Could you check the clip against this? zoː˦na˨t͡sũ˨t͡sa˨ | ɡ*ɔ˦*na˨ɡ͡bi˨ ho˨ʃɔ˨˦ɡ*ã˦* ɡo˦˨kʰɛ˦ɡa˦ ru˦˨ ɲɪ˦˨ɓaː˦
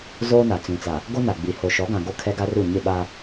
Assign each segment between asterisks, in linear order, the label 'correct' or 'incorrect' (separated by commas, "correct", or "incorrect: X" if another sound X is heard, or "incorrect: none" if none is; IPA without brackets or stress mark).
incorrect: o˦, incorrect: ã˨